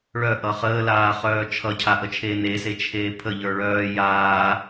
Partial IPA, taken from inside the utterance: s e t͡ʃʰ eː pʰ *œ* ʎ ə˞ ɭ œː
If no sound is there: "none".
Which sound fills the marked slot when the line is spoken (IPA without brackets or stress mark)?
ə